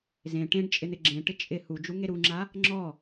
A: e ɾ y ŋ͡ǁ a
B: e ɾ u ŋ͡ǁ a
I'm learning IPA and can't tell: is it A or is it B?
B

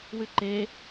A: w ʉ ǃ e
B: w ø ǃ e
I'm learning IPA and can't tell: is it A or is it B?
A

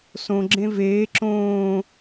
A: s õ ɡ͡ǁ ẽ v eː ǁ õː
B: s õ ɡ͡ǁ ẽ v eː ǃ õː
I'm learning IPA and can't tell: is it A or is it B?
A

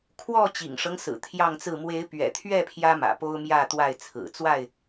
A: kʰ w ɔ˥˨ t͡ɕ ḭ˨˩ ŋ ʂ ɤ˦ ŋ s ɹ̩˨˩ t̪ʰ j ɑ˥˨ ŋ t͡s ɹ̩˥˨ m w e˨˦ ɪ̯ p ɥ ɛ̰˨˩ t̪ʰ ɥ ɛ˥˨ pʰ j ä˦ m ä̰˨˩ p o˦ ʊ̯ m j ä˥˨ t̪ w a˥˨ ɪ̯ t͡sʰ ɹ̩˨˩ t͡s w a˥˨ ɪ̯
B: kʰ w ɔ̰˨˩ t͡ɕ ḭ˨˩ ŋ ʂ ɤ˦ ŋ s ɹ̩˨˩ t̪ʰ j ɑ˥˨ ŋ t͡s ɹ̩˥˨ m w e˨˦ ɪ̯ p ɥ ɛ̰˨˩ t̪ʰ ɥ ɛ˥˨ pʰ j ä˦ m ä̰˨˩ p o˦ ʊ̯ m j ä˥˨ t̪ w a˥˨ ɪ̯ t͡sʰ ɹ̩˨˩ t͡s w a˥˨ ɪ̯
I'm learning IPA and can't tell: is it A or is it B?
A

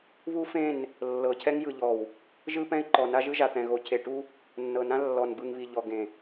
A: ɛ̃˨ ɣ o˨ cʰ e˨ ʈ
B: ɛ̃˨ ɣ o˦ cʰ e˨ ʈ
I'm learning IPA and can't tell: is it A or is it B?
A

